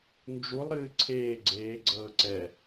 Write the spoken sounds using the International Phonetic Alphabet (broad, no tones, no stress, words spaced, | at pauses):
nd͡ʒulˠɾɨː ǀʰeː ɡ͡ǀeːɡ͡ǀɤː ǀɛ